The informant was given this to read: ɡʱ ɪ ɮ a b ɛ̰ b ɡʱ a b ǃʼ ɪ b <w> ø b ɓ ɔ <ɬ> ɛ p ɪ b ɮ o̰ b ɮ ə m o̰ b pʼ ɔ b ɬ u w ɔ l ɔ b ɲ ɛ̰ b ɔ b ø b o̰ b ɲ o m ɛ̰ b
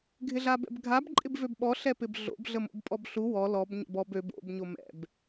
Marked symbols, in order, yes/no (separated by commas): no, yes